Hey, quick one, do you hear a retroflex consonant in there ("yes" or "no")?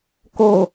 no